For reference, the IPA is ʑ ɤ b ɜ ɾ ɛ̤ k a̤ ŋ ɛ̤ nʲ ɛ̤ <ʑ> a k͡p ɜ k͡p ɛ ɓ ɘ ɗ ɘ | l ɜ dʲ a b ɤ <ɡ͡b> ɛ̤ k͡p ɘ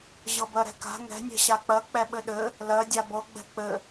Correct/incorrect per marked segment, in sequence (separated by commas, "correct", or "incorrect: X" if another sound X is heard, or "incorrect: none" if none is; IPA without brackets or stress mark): incorrect: ɕ, correct